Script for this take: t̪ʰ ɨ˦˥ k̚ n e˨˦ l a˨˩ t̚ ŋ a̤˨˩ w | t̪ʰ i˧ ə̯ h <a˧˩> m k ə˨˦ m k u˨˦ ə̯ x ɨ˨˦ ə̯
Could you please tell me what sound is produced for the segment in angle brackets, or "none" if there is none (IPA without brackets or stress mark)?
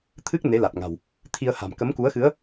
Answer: a̤˨˩